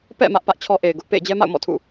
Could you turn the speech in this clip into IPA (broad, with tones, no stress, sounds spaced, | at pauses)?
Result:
p ɛ̰˦˨ m ä˦ ʔ p ä˦ ʔ t͡ɕʰ ɔ˦ ʔ e˨ ɪ̯ ɡ ʊ˦ ʔ p ḛ˦˨ ɪ̯ d͡ʑ ɛ˦ m a̰˦˨ ʊ̯ m ɔ̰˦˨ tʰ ṵ˦˨